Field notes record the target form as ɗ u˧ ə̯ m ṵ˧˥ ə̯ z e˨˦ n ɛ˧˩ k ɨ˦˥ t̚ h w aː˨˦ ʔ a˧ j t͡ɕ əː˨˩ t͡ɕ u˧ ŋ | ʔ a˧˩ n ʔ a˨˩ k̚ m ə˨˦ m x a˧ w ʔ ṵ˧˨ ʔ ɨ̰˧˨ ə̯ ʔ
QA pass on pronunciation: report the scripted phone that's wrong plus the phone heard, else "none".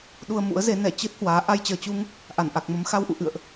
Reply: k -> t͡ɕ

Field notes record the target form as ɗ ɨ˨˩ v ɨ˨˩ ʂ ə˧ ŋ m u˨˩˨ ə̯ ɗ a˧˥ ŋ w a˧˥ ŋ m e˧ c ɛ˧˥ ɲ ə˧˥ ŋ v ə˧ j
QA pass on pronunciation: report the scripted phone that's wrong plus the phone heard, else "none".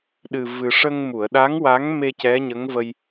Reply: none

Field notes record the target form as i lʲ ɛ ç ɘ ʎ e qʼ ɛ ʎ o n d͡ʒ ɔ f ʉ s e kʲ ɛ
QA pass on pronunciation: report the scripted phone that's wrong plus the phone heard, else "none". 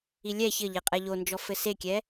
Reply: ʉ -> ɘ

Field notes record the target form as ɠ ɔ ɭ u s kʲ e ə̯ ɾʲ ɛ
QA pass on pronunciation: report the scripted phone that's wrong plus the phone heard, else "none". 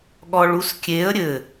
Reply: ɛ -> ɘ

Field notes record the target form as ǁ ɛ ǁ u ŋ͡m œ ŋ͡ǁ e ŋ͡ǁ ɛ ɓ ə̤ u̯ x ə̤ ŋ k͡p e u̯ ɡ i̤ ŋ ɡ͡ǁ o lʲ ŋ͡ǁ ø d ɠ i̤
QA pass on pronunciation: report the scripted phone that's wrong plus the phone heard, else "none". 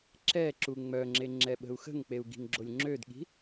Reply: none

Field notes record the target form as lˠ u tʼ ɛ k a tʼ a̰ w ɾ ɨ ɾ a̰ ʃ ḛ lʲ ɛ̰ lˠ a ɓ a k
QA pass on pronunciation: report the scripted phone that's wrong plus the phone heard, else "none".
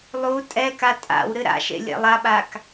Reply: none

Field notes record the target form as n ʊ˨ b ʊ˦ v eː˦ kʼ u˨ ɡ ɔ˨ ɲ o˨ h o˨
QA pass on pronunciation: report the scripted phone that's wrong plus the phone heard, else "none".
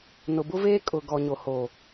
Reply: u˨ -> ʊ˨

